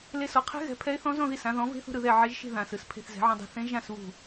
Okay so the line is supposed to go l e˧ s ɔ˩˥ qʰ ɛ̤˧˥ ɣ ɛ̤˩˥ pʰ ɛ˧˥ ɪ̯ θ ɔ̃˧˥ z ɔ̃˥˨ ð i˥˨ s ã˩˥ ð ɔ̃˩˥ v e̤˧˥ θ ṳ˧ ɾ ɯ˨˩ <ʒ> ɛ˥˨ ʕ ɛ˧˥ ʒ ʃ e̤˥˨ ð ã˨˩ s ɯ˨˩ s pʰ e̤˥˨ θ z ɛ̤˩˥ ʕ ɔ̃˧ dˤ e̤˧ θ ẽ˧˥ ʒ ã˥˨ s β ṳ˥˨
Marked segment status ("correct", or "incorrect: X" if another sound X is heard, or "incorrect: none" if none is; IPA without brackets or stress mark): incorrect: ð